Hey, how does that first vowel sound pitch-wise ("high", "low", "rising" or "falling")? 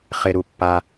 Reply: low